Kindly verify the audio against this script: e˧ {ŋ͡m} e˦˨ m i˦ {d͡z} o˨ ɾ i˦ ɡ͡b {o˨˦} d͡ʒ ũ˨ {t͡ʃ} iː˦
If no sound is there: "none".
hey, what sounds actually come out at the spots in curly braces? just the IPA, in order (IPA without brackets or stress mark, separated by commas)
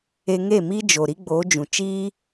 ŋ, d͡ʒ, o˨˦, t͡ʃ